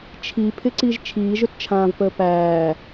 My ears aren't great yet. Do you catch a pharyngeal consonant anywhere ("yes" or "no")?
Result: no